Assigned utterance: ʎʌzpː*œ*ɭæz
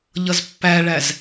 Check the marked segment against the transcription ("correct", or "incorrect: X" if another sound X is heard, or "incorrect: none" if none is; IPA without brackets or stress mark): incorrect: æ